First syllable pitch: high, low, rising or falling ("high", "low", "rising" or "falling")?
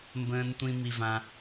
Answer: low